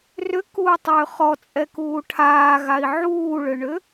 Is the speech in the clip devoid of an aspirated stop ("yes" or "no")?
no